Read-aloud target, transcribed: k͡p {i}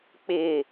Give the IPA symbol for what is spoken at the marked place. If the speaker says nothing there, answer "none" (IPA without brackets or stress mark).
ɪ